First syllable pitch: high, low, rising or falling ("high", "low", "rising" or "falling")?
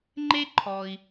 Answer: high